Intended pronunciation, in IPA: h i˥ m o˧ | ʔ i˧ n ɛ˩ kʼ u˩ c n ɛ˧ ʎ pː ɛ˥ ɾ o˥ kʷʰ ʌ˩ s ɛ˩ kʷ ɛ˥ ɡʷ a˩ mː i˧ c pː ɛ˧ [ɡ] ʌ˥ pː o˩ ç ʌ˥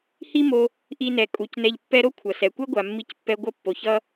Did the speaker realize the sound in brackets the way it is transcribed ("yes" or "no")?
no